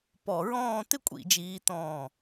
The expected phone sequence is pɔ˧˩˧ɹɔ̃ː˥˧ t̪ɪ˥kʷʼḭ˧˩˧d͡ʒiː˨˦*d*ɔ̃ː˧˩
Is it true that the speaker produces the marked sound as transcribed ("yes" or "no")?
no